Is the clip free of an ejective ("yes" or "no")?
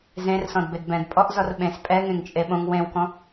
no